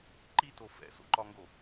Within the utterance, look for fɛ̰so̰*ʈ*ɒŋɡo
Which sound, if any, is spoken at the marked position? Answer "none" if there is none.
ǃ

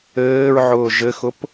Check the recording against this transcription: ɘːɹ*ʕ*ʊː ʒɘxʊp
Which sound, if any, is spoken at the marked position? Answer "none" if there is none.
ʕ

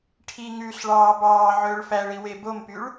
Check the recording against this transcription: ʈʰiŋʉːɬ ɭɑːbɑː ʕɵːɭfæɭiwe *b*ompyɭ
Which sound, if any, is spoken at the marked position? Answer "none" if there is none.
b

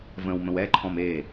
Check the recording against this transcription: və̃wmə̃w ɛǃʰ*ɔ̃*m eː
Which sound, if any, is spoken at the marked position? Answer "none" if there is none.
ɔ̃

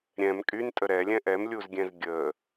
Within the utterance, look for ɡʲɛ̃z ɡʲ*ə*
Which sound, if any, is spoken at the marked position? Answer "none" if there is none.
ə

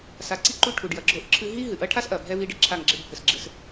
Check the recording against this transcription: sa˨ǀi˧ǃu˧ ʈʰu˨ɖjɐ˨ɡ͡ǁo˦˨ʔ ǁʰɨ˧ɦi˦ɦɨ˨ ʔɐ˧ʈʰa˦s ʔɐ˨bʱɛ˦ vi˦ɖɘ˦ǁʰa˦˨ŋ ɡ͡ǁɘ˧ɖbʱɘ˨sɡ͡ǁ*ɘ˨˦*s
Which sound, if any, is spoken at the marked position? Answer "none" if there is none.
ɘ˨˦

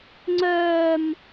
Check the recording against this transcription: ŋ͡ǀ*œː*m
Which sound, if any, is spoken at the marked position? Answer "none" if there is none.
œː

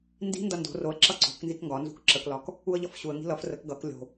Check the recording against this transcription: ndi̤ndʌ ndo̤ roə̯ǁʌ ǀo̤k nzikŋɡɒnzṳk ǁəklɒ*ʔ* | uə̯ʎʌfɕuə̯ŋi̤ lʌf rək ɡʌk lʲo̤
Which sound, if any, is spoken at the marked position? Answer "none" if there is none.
k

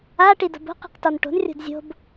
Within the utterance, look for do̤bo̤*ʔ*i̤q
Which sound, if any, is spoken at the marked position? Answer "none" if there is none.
q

